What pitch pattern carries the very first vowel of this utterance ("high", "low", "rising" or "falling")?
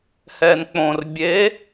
low